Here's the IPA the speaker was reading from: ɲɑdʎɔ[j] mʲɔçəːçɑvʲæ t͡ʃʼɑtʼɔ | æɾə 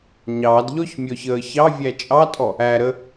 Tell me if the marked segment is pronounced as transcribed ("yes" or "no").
no